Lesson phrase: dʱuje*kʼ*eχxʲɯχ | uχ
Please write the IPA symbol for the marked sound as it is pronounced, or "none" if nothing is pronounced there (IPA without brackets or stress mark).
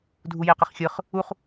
q